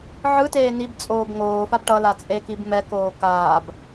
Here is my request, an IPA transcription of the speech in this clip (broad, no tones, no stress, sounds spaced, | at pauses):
ʕ ɯ t eː n i b t͡sʼ oː b ŋ oː f a b ʈ ʌ l a t͡sʼ e k i b m ɛ k oː k aː b